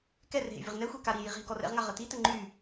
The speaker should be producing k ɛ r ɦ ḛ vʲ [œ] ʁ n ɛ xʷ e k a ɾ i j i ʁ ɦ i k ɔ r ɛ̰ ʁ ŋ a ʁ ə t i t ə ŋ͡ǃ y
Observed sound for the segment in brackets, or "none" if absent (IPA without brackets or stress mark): ə